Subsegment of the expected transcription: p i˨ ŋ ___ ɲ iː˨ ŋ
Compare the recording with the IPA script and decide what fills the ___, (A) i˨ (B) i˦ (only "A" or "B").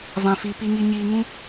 A